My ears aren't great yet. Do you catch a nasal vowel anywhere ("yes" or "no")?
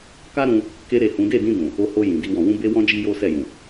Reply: yes